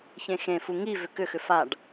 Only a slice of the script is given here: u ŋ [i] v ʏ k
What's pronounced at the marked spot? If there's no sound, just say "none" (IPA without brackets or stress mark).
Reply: i